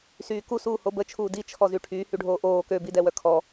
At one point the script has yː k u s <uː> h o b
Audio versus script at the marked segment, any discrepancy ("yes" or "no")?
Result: no